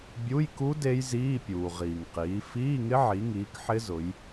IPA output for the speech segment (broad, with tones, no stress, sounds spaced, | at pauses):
bʲ u˧˥˧ j k u˦˥ d e˦˥ j z iː˧˥˧ pʲ uː˩ ʁ iː˩ ŋ q iː˩˧ f iː˧˥˧ ŋ ɪ˦˥ ʕ i˩˧ ŋ iː˩˧ k ħ ɪ˦˥ z ʊ˩˧ j